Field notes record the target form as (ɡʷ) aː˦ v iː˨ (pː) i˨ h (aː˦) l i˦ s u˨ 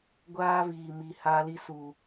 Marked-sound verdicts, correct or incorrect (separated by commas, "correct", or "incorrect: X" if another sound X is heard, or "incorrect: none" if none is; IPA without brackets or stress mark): correct, incorrect: m, correct